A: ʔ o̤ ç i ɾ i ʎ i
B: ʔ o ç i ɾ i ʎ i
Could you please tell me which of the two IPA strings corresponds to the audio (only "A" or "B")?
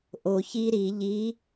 B